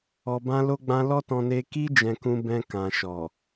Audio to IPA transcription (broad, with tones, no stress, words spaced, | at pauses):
ɔ˨bã˧lo˧ɡ͡bã˧ lɔ˦tɔ̃˧ne˧ ki˧d͡ʒɛ̃˨kũ˨ bɛ̃˨ kã˨ʃɔ˨